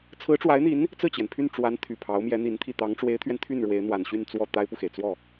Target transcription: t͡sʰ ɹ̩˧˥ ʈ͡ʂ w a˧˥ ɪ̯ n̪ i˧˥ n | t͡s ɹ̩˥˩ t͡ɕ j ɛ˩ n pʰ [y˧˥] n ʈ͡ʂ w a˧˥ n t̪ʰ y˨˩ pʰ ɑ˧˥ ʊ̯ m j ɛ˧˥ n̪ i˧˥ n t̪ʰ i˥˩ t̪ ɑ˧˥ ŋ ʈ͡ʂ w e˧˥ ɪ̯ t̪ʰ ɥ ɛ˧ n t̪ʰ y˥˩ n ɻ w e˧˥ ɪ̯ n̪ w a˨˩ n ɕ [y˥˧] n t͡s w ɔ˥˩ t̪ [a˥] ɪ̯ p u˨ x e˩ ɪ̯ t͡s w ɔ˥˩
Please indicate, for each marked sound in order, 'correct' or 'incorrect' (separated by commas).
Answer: incorrect, correct, correct